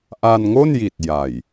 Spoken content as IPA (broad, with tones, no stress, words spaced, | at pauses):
ʔa˧nŋo˥˩nji˨˩t̚ ja˨˩j